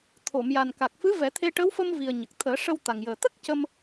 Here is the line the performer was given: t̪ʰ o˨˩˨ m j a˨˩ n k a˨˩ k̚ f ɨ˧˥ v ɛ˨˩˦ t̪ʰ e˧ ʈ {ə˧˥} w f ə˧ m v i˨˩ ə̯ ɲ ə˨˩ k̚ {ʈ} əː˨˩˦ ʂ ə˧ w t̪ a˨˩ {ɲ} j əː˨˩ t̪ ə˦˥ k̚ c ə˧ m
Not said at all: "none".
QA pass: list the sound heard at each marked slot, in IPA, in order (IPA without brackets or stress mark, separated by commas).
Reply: ə˧˥, t̪ʰ, ŋ